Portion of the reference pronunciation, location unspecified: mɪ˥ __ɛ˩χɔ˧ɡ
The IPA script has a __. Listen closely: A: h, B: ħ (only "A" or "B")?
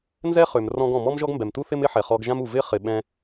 B